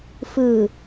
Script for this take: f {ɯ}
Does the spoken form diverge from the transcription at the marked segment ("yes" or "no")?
no